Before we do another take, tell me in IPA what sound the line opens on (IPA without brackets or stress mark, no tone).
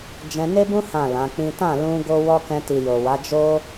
d͡ʒ